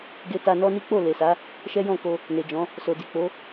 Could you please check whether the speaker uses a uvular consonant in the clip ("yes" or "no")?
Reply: no